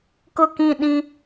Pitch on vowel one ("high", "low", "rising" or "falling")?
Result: falling